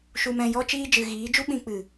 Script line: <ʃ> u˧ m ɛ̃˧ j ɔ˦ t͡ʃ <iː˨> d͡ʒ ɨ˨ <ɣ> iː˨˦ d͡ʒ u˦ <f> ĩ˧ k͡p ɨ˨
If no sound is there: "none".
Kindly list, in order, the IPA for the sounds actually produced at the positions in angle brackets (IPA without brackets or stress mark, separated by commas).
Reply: ʃ, iː˦, ɣ, ɓ